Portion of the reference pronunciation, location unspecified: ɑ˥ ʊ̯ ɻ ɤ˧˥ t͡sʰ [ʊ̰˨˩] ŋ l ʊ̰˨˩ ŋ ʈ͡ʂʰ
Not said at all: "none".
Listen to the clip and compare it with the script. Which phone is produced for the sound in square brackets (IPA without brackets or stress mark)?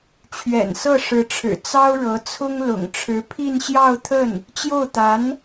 ʊ˥